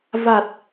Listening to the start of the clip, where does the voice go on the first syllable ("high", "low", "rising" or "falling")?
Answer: low